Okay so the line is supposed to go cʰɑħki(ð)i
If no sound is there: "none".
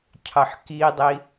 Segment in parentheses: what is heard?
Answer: dˤ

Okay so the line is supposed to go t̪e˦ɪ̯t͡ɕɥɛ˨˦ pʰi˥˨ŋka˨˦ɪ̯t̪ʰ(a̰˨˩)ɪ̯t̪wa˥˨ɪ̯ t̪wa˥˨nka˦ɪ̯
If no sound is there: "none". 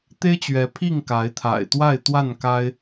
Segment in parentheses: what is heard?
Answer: a̰˨˩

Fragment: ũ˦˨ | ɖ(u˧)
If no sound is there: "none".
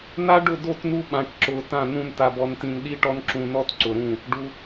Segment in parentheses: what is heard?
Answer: u˧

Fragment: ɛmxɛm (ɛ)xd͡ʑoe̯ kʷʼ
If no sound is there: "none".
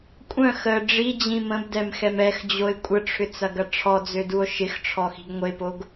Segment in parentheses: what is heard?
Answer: ɛ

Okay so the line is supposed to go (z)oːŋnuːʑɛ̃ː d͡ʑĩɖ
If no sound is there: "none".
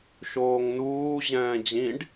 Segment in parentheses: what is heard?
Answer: ʃ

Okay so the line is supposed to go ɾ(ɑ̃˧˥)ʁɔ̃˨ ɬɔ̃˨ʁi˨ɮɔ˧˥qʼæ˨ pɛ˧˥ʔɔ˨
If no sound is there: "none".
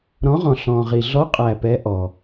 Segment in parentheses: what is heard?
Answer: ɔ̃˧˥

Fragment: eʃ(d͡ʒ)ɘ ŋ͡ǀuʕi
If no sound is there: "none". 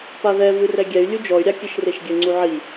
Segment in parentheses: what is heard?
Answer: ɡʲ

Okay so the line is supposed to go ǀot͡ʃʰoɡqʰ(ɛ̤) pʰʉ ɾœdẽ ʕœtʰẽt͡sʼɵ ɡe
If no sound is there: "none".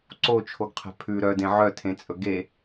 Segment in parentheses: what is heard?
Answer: ɛ̤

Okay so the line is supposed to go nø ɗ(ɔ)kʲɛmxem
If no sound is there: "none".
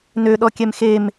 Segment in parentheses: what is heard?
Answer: ɔ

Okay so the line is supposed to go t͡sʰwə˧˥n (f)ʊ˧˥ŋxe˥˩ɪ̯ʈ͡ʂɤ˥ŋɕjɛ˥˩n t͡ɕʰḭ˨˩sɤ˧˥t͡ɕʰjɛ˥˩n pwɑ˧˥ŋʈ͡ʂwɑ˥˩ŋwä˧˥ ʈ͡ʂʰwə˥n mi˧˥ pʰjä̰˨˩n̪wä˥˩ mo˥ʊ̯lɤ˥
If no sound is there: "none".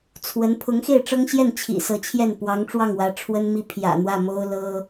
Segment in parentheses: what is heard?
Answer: pʰ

